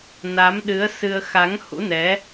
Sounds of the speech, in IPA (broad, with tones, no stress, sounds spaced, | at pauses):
n a˨˦ m ɗ ɨ˨˦ ə̯ s ɨ˧ ə̯ x a˨˦ ŋ h ṵ˧˥ n ɛ˨˦